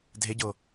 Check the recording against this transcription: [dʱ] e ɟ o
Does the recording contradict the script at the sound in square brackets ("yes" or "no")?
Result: no